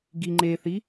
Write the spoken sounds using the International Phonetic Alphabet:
ɡ i ŋ͡ǃ e θ i

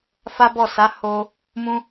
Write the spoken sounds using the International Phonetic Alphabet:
f a˦ b ɔ˦˨ s a˨˦ h o˧ | m ũ˧

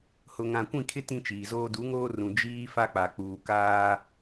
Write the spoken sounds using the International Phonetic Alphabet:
h ʊ˨ ŋ ã˨ kʷ ĩ˦˨ kʰ ɪ˦ t ĩ˦ t͡ʃ iː˨ z oː˦ d u˨˦ ŋ oː˦ r ũ˨ d͡ʒ iː˦ f a˦ k͡p a˨ k͡p uː˨ k aː˦

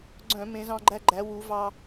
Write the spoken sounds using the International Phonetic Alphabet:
ɡ͡ǀ œ̃˧˩˧ m ẽ˩˧ z ɑ̃˧ ɡ͡ǃ æ˧ ɡ͡ǃ æ˩˧ w u˩˧ v ɑ˧

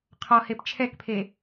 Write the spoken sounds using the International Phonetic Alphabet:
qʰ ɔ h e p t͡ʃʰ ɛ k pʰ e

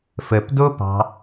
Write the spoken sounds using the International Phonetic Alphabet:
f ə p d o p ɑ̤

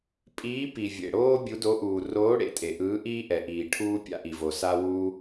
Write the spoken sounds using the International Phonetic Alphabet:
pʼ iː˨˦ p i˩ vʲ ḛ˩ ɽ oː˦ bʲ u˨˦ d o˨˦ ʔ uː˩ r oː˨˦ ɽ ḛ˩ tʼ e˩ ʔ ɯː˨˦ ʔ iː˦ ʔ ɛ˩ ʔ iː˩ ʈʰ uː˦ pʲ a̰˦ ʔ i˩ v o˩ s a˦ w u˦

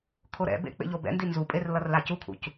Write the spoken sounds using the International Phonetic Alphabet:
kʰ o ɾ ɛ̰ b ḛ k͡p ḛ ʎ o b ɛ̰ n d i n z u pʼ e r l ʌ r l a c u kʰ ṵ c

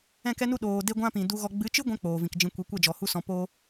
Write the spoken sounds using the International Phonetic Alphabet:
ɛ̃˦˨ k ɛ˦ n u˦ ɗ oː˨ d e˦ ɡʷ ã˦ p ĩ˨ d u˧ ɣ ɔ˧ ɡ͡b ɨ˨˦ t͡ʃ ɨ˦ ɡʷ ɛ̃˧ k͡p oː˨ v ĩ˨ k d͡ʒ ĩ˧ kʷ i˨˦ kʷ ɛ˦˨ d͡ʒ ɔ˨ h u˦ s ɔ̃˧ p oː˦

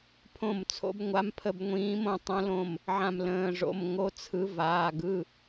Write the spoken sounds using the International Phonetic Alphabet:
pʰ õ˧˩ m t͡sʰ o̰˨˦ b ŋʷ a˨˦ m pʰ ə˧˩ b ŋʷ ĩː˨˦ m õ˩˧˩ tˤ õ˨˦ l õ˧˩ m | ʕ ã˧˩ m l ə̃ː˩˧˩ ʐ o̰˩˧˩ m ŋ o˨˦ t͡sʰ ɯ˨˦ v aː˩˧˩ ɡ ɯ˩˧˩

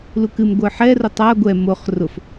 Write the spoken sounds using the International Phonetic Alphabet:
l u k ɨ m ɡʷ ə˞ ħ ɛ r o tˤ a ɡʷ ɛ m o χ r ʊ f

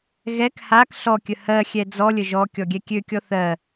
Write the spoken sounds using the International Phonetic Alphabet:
ɣ ɛ k h a k ɬ ɔ kʲ ə h ɜ xʲ ɛ d͡z ɔ lʲ ə ʒ ɔ kʲ ɔ ɡʲ ɛ kʲ ø kʲ ɔ θ ɜ

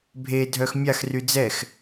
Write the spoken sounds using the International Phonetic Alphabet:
bʱ e dʱ œ x mʲ a x r y d͡z ɛ x

